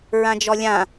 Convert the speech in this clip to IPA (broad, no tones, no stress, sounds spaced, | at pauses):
ɹ ã d͡ʒ ɔ lʲ ã